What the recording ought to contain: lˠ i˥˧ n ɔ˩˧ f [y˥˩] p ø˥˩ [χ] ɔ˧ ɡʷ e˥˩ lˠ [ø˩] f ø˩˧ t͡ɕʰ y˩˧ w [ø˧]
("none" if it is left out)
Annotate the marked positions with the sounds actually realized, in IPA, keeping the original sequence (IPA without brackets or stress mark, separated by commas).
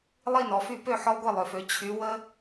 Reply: y˥˩, ħ, ø˩, ə˧